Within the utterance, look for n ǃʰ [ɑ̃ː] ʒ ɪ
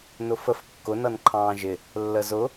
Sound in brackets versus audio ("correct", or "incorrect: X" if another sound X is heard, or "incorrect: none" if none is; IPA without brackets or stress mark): correct